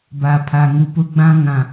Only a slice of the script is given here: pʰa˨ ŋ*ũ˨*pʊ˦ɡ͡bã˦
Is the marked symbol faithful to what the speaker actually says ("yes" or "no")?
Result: no